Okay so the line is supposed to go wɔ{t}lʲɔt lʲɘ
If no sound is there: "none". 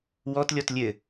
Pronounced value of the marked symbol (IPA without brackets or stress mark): t